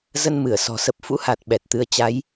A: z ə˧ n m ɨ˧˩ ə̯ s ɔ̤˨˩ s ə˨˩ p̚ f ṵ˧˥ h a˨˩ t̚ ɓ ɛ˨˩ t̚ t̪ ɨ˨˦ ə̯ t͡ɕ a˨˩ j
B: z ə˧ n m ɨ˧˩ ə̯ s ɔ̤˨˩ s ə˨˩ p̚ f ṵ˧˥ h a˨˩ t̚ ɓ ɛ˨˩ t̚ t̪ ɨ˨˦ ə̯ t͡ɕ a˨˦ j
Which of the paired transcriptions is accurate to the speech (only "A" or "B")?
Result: B